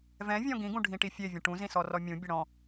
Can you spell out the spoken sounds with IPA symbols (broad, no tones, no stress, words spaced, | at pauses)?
vɛ̃vʲɔ̃ ɡĩɡũɖʱĩʈi fʲevʲə̃ ʈũzĩsɔrɔ mʲũbʲə ɽɔ̃